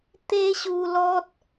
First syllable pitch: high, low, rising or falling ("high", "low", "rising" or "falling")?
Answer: high